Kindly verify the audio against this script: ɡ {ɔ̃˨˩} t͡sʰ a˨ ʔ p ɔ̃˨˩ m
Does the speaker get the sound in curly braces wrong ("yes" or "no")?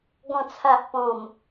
no